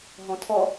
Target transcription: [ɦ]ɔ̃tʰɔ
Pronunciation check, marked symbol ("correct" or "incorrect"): correct